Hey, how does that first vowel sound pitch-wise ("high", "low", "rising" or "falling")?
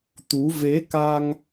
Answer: rising